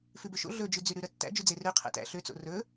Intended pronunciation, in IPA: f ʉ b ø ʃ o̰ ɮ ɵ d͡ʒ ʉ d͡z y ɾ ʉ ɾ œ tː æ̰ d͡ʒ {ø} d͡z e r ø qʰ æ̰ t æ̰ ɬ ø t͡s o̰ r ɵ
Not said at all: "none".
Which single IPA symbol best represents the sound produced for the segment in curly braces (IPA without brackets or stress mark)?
y